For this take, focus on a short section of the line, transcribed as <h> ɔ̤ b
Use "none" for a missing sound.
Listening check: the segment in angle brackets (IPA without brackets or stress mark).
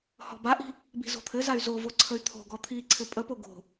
h